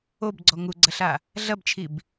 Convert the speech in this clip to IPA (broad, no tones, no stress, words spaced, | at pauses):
obɡ͡ǀɔ ŋuɡ͡ǀɐɬa | ɮɐbt͡ʃʰib